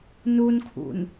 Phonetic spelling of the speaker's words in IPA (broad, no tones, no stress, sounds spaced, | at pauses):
n u n kʰ ṵ n